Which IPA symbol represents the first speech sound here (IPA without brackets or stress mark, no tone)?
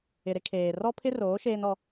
ɪ